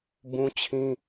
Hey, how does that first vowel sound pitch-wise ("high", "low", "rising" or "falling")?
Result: high